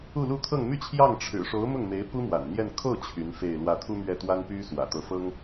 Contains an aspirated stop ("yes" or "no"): yes